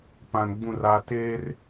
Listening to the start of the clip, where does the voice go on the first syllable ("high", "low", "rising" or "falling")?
low